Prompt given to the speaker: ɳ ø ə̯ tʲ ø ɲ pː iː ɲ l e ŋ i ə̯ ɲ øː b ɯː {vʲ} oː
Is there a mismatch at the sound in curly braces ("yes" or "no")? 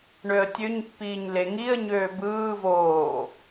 yes